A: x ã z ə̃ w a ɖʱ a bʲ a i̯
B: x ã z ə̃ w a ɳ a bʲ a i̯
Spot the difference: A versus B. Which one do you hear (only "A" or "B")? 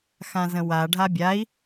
A